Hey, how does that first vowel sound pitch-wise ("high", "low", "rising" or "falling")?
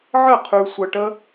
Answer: falling